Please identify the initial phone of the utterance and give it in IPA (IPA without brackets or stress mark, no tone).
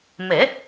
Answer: m